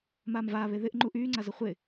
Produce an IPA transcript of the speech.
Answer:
maːmvaːβe ðɪʔ ŋ͡ǃuʔyːŋ͡ǀazə χʷɪ

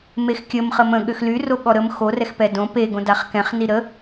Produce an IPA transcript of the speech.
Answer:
mexkʲəm χəmə̃ ɠøxlyro ɠɔɾəm xorɛxpɛ dõ peɡõdaχ kɛ̃χni ɾə

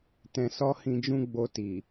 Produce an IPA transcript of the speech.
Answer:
tɛ̃˧ sɔ˦hĩ˧d͡ʒũ˦ ɡ͡bo˧ti˨

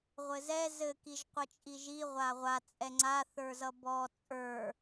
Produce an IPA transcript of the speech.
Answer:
ʁʷɘzɛ zɘ kiʒqʷʌt͡ʃʼiʒi ʁʷaʁʷa t͡sʼɛŋ͡ǀa θə˞zʌbɔ t͡sʼə˞

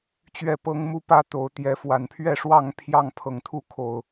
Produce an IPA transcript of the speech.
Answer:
t͡ɕɥɛ˥˨pɤ˦ŋ mu˦pä˦t̪o˨˦ʊ̯ t̪jɛ˨˦fwa˨˩npʰɥɛ˥˨ ʂwɑ˥˨ŋ pʰjɑ˥˨ŋpʰɤ˨˩ŋt̪ʰu˥˨ kʰo˨˩ʊ̯

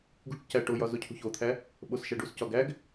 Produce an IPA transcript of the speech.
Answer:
ɡṳʈcæ ʈojɒ zocʰṳçot̪ʰæ | ɓosʃæɖuscɒ ɡæɡ

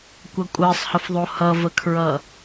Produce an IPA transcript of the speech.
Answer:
kʷʌkʷʼəːsˤhəfðˤo hʌvəkʰɹʌ

